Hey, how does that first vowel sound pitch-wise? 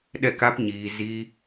falling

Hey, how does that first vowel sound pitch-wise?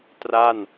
falling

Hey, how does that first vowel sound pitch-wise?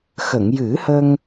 low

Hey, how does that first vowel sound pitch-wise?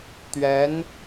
rising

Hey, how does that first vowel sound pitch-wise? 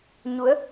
rising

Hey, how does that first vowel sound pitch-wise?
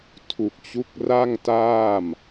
low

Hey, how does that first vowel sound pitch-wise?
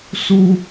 high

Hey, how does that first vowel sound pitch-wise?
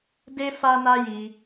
high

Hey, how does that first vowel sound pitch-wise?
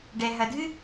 low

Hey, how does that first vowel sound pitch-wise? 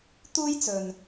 high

